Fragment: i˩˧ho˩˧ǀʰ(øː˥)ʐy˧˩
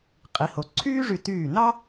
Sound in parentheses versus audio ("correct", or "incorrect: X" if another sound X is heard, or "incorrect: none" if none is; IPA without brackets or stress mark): incorrect: yː˥